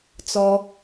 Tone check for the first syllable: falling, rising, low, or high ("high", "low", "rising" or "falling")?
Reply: high